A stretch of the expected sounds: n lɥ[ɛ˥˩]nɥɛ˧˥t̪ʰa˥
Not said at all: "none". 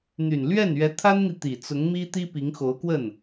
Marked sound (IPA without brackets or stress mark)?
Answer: ɛ˥˩